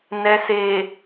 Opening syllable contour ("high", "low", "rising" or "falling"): low